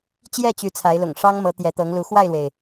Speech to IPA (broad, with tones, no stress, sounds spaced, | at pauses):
t͡ɕ j ɛ˥˨ t͡ɕ y˨˦ t͡sʰ a˨˦ ɪ̯ l ʊ̰˨˩ ŋ ʂ ɑ˦ ŋ m ɤ˨˦ t̪ j ɛ˨˦ t̪ ɤ˨˦ ŋ l u˨˦ x w a˥˨ ɪ̯ l w e˩ ɪ̯